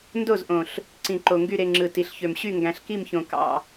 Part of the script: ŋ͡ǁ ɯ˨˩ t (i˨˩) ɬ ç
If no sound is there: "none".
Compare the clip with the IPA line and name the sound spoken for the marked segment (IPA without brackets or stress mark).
i˨˩